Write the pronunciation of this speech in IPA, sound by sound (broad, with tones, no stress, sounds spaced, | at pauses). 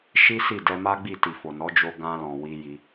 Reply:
ʃ i˦ s i˦˨ d ɛ˧ m a˦ ɡ͡b i˦˨ t i˨ f o˨ n ɔ˨˦ d͡ʒ o˧ ɡ ã˧ l ɔ̃˨ w i˧ j i˧